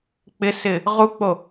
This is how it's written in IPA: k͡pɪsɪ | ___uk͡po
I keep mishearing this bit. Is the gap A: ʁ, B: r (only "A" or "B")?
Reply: A